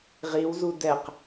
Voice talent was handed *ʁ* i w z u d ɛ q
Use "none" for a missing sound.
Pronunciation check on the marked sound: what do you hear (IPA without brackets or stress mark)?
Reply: ʁ